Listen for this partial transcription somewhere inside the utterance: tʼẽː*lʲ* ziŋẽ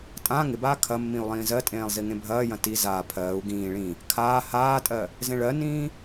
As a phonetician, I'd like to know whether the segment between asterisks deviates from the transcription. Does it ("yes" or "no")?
yes